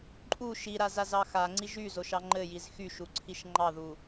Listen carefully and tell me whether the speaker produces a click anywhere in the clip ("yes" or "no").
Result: yes